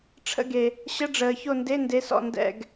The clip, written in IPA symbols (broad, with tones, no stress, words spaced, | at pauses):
ʈ͡ʂʰə̰˦˨ɡe˨ | ɕə˧˥˧ɖ͡ʐəː˨ ço˦˨nde˧˥˧nde˨˥sɔ̰˦˨ ndɛ̰˦˨ɡ